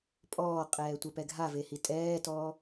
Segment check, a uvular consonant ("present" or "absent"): present